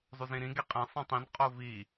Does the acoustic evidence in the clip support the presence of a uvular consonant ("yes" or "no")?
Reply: yes